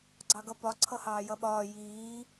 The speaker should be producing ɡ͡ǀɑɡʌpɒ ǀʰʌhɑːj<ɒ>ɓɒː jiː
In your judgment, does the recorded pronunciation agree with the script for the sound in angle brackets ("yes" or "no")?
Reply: no